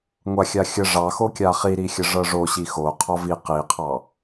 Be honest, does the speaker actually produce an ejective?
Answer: no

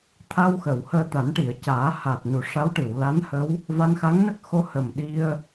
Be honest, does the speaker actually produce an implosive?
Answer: yes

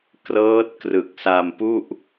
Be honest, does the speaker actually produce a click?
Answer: no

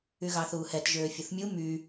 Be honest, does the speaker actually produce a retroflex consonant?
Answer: no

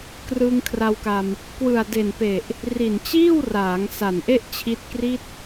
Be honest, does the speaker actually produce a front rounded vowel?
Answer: no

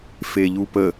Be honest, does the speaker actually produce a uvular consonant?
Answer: no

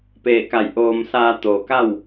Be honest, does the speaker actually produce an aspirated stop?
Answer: no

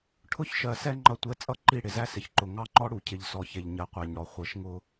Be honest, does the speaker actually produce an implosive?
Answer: no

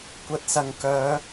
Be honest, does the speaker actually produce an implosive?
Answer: no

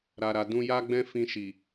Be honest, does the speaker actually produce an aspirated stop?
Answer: no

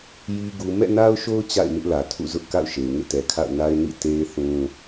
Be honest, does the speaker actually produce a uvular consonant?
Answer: no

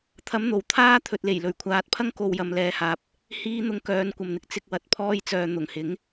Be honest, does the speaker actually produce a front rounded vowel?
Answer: yes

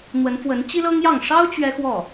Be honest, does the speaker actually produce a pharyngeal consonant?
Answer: no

